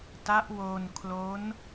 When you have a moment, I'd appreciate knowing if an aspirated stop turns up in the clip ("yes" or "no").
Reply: yes